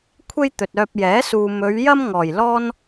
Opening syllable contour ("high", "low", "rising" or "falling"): high